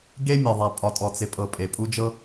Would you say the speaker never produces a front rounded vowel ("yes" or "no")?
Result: yes